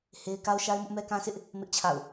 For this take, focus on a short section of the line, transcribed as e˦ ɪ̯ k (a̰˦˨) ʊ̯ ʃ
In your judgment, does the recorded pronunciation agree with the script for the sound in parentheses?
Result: no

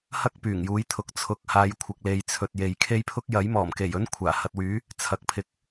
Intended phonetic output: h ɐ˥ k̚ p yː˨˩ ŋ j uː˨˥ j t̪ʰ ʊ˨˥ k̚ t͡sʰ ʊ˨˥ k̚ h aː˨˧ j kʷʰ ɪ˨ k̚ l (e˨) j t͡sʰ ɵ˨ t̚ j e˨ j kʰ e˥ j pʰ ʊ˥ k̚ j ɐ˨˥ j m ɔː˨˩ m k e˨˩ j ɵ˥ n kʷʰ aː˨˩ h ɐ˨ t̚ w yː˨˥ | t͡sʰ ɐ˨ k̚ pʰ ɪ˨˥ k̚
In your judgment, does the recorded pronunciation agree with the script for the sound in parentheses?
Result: yes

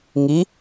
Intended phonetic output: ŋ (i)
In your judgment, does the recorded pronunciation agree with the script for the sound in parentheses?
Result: yes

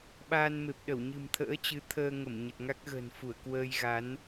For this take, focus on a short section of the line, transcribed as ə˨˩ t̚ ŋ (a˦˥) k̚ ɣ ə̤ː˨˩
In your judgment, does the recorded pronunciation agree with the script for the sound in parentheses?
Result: yes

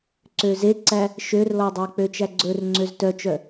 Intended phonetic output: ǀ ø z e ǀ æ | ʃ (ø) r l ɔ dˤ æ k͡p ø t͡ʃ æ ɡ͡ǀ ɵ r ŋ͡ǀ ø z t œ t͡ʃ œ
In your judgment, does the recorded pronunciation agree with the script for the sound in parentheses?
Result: yes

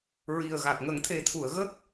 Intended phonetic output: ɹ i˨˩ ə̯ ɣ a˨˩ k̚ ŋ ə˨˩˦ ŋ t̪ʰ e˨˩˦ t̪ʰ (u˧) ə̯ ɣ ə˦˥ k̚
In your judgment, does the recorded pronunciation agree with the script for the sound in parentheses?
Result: no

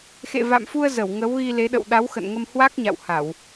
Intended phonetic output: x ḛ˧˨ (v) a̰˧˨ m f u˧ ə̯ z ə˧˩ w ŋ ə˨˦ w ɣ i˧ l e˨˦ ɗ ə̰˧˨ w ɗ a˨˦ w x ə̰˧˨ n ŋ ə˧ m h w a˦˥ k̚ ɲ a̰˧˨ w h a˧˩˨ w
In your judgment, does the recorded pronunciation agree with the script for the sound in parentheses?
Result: yes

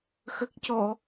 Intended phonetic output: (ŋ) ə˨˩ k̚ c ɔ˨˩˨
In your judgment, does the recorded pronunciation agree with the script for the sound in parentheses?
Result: no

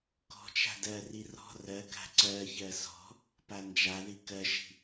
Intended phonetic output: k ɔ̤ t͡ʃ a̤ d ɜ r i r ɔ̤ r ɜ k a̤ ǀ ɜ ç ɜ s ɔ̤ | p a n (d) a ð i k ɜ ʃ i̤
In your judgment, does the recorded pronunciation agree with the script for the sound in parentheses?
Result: no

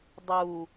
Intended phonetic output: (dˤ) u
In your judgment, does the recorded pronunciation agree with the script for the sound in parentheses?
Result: yes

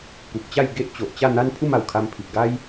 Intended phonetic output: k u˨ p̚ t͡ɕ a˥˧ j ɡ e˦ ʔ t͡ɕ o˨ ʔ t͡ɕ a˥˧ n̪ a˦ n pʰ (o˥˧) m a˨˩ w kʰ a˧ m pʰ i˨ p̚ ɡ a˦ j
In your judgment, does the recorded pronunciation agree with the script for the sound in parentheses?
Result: no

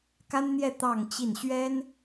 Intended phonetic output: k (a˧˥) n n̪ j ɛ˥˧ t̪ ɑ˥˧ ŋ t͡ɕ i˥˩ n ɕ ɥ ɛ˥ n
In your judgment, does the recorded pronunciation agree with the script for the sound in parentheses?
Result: no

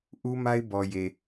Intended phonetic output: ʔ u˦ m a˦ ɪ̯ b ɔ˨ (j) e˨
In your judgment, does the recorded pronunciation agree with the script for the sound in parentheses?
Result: yes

